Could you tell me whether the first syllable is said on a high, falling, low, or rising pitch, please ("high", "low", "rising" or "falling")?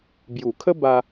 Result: low